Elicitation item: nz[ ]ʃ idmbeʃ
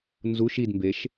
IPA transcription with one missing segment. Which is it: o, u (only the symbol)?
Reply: u